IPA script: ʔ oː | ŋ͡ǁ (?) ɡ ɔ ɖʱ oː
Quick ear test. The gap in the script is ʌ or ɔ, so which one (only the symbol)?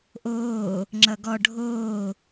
ʌ